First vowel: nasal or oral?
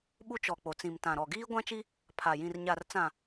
oral